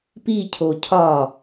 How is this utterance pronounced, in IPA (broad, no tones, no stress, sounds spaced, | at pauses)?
p i cʰ o cʰ ɒ